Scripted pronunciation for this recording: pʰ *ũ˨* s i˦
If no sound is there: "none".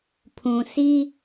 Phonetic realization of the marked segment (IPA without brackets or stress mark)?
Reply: ũ˨